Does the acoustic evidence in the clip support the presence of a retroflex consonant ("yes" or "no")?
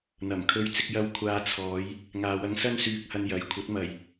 no